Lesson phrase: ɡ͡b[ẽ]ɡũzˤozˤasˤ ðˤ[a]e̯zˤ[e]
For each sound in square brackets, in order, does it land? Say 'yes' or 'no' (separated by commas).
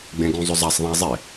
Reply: yes, no, yes